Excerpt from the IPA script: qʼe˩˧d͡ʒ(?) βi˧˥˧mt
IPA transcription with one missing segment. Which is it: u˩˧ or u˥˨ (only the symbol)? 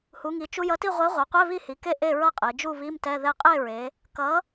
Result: u˥˨